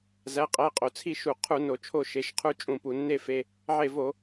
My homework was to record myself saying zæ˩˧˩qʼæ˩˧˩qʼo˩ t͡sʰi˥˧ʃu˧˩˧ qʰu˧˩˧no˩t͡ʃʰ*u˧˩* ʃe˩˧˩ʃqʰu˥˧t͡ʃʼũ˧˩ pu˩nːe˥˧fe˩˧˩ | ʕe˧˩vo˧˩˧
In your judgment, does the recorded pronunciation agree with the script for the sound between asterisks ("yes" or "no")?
no